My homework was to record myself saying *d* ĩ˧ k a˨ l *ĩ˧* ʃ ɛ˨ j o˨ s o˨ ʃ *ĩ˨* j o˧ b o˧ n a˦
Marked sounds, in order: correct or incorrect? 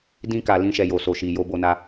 correct, correct, incorrect: i˨

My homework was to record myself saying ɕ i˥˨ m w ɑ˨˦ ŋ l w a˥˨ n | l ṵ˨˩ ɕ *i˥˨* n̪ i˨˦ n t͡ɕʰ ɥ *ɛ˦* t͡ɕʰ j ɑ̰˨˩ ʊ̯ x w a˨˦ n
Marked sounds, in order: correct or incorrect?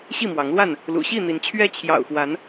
correct, correct

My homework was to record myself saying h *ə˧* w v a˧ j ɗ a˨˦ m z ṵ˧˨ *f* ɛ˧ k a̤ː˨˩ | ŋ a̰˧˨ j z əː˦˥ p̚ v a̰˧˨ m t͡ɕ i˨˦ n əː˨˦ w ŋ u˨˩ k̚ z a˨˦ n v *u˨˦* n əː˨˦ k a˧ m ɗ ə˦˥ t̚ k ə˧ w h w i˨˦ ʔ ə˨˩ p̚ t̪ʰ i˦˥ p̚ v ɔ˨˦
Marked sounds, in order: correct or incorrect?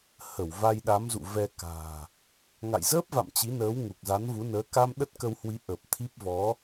incorrect: ə˧˩, incorrect: v, correct

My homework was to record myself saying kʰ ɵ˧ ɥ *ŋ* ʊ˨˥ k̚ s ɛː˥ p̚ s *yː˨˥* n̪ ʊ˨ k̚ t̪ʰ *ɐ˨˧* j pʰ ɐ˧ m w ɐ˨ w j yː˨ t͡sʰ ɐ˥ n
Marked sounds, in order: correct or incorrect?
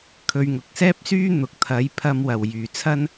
correct, incorrect: yː˥, correct

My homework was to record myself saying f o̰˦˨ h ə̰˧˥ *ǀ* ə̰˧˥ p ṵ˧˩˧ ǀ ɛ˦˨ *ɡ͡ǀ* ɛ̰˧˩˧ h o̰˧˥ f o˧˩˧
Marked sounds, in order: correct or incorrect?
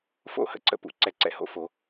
correct, incorrect: ǀ

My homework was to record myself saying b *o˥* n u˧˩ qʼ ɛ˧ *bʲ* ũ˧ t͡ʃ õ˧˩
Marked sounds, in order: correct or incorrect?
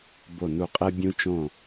incorrect: o˧˩, correct

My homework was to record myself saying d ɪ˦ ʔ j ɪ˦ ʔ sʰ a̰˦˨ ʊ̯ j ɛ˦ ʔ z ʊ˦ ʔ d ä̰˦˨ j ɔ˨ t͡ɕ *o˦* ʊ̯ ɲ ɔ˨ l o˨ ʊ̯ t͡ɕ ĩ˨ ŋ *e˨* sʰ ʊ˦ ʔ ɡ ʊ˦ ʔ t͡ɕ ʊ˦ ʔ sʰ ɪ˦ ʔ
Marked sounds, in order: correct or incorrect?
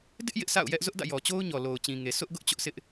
correct, correct

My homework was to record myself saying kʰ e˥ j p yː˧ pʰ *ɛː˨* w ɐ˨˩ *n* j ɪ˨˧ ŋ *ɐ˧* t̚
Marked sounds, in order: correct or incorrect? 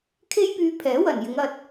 incorrect: ɛː˨˥, correct, correct

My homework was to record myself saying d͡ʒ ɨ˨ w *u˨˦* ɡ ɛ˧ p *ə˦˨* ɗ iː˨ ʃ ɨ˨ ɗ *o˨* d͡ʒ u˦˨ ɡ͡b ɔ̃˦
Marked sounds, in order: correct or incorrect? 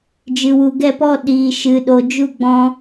incorrect: u˨, incorrect: ɔ˦˨, correct

